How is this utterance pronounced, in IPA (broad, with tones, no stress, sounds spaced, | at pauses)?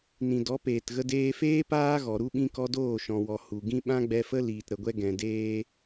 n ĩ˨ d ɔ˨˦ p eː˨ t ɣ ə˧ d eː˧ f eː˦ p aː˦ ɣ ɔ˨ ɾ u˦ ɓ ĩ˦ k ɔ˦ d oː˦˨ ʃ ɔ̃˨ w ɔ˨ h u˨ ɡ ĩ˦ ɓ ã˦ ɡ͡b ɛ˧ f ə˦ l iː˨ t ɾ ə˨ ɡʷ ɛ˧ ɡ ɛ̃˨ d eː˧